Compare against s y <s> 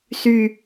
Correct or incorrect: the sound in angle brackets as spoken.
incorrect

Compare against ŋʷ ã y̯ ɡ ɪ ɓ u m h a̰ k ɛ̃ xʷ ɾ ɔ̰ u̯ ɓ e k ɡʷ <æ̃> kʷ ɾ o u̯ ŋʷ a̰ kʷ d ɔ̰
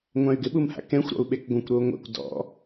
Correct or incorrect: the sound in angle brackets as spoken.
incorrect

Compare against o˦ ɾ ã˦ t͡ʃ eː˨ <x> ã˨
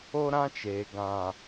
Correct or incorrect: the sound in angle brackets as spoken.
incorrect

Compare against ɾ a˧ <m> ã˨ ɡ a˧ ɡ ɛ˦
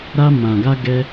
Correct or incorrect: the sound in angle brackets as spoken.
correct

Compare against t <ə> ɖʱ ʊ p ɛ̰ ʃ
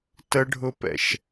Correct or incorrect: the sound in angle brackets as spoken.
correct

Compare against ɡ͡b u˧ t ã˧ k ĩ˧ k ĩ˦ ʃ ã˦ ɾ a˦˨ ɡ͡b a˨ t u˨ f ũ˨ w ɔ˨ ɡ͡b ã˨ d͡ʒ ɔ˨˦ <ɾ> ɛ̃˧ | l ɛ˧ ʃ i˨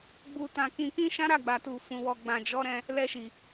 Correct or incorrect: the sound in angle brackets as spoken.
correct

